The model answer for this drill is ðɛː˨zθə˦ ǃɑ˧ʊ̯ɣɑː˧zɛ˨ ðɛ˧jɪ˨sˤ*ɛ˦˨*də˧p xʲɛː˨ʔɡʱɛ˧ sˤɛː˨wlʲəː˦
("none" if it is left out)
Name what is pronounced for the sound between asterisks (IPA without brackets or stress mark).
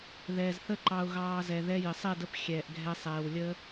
ɛ˦˨